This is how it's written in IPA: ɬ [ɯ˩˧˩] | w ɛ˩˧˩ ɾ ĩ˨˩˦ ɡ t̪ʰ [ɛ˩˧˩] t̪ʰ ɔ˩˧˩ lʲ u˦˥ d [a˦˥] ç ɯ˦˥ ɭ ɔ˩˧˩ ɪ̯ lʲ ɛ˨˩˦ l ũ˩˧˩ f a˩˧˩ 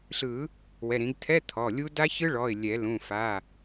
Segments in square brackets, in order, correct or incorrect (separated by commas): incorrect, incorrect, correct